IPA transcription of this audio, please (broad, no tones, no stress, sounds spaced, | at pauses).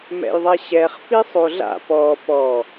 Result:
m ɛ̰ j ðˤ ɛ ɕ ɛ χ f i sˤ o ɮ a̰ p ɔ p ɔ